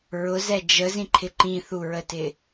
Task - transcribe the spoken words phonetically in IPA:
ɹʊzɛ d͡ʒəzĩǃʰɪ ǃĩθuɹətɪ

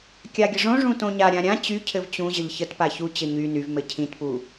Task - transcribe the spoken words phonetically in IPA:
kʲaɡʲəʐõ ʐũtõɲa ɾʲãɾʲã t͡ɕy cʰɘvt͡ɕũ ʑəʎçətpa çu t͡ɕɘɲy nyvmɘ cʰĩtpu

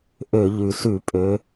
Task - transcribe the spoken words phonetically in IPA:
ʔø˧˩˧ʎʉ˩ sʉ˧˩˧ pʼø˩˧

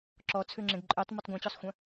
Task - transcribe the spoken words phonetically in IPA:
ǁɔt͡sʰʉŋ͡ǁẽɡ ǃʼøtˤmɵtˤ ɡʷɛ̃t͡ɕɔsˤxʷœ̃

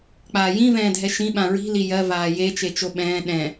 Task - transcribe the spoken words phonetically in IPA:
k͡paːjĩ vɛ̃ːdʱɛʃĩ ɓãɹi̤ lijɜ vaːje t͡ʃet͡ʃoɓɛ̃ː ɗɛ̃

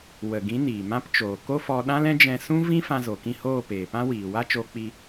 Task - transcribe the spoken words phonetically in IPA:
wə˨ɡĩ˨˦ niː˨mã˦p t͡ʃoː˨ko˦fɔ˧ ɗã˦lɛ̃˦ d͡ʒɛ̃˧sũ˦ vĩ˦fã˧ zo˨kĩ˦˨hoː˦˨ peː˨pã˦ wiː˨wa˦ t͡ʃoː˧k͡pi˧

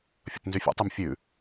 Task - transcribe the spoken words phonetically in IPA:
fʲə̰tnzyfʲṵtˤym fʲʉ

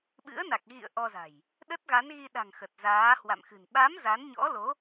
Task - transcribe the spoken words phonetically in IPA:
ɓɨ̰˧˥ə̯na˨˩k̚ ɣḭ˧˨ə̯ ʔɔ˧za̤˨˩j | ɗə˦˥t̚ɣa˨˦nɣi˧ɗa̤˨˩ŋ xə˨˩t̚zaː˨˦hwa̰˧˨mxɨ̤˨˩n ɓa˨˦m za˨˦nɲɔ̰˧˥lo˨˦

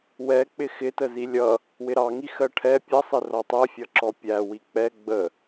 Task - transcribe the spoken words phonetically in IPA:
wɛ k͡pɪxɪtəzi lʲʌ | wɪɾɑŋi xɜʈʰɛ pʲʌsˤɪ rɔtˤɜfʲʌǁɔ pʲæ wik͡pɛ ɡ͡bə

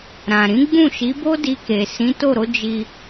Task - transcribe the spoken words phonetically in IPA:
ɾã˨ ɾĩ˨˦ɡ͡bũ˦˨ʃi˨˦bo˦ di˧ke˨ sĩ˨˦to˦˨ɾo˨˦ d͡ʒi˧

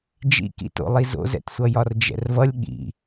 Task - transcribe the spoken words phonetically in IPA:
d͡ʒḭkḭto̰lˠi zo̰zɛ̰tsʷʌ jɒrd͡ʒɛ̰rvʌlʲ ɠḭ

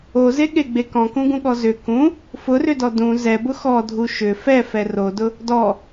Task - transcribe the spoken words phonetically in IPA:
ozeɠeɡ͡be kɔ̃kũɡũɠɔ zʏ kũ | fʊrʏdɔ dũ zɛbʊ xɔdʱu ʃʏ fɛfɛ rodʊ | dɔ

